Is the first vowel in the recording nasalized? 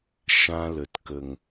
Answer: yes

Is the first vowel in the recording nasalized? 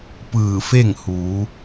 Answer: no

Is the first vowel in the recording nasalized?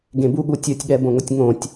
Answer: yes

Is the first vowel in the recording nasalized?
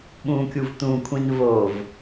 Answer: yes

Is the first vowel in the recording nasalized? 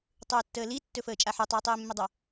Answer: no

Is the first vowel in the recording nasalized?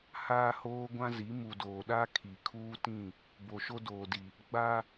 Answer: no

